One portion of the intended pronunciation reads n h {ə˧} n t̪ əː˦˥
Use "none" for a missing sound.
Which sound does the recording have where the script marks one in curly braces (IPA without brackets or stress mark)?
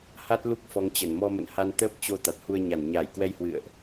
a˧